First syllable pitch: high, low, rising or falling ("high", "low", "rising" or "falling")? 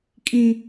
high